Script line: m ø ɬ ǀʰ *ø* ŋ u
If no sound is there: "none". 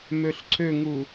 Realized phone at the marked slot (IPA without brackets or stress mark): ø